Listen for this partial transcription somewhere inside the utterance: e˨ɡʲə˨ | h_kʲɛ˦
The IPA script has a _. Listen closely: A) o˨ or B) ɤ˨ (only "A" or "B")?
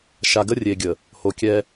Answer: A